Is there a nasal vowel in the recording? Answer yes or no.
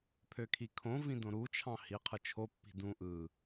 yes